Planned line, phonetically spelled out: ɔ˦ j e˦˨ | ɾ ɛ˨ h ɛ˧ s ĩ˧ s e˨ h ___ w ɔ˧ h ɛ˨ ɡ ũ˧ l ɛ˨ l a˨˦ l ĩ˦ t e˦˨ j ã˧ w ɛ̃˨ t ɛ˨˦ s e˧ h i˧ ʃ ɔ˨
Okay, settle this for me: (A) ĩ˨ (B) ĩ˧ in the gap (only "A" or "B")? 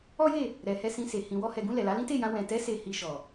A